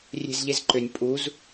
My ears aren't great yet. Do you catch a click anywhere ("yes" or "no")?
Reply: yes